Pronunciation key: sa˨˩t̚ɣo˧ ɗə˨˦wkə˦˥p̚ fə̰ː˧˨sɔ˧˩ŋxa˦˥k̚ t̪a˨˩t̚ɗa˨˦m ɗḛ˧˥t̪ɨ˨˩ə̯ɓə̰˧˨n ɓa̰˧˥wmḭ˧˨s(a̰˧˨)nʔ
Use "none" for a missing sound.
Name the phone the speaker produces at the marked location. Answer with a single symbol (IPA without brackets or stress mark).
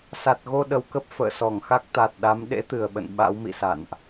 a̰˧˨